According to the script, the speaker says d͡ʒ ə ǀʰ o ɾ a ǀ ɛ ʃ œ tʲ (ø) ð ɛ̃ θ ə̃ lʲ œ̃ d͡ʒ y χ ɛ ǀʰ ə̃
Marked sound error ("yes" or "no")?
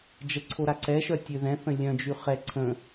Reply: no